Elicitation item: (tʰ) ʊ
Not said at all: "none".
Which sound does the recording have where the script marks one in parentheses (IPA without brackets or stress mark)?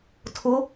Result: tʰ